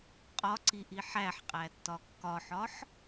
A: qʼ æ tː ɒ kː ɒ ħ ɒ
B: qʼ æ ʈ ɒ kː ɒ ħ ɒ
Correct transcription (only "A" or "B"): A